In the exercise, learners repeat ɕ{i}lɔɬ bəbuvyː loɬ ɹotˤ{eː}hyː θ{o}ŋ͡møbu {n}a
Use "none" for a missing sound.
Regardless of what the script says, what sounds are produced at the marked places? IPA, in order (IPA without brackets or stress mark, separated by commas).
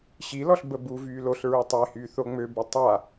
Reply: i, eː, o, tˤ